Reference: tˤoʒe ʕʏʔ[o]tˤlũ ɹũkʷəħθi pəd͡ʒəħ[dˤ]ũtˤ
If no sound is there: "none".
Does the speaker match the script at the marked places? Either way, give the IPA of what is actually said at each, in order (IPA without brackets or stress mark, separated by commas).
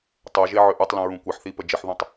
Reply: u, ð